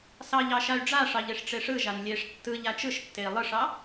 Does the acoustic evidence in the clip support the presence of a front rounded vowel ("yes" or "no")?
yes